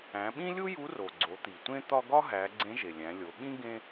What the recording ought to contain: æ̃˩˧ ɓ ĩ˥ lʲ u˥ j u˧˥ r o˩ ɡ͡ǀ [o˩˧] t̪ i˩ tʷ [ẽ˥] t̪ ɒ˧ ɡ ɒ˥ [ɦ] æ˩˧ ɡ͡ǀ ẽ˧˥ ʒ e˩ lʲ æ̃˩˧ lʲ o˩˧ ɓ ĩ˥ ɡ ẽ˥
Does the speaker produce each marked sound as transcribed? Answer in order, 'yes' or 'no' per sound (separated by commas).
yes, yes, yes